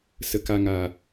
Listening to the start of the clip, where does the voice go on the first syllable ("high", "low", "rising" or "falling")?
low